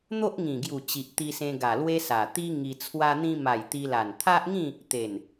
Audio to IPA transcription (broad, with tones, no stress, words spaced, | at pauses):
n̪o˦ʔŋĩ˨˩ɡju˨˩ t͡ɕi˨ʔt̪i˧sẽ˧ ɡa˨˩lwe˦sa˨˩ t̪i˦ŋi˧ t͡sʰwa˧n̪ĩ˧ma˨˩j t̪i˧ la˨˩nt̪ʰa˦ʔŋĩ˥˧ | t̪e˨˩n